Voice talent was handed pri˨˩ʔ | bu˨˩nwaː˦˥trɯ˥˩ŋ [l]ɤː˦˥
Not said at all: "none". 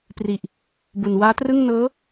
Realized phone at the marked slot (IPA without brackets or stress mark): n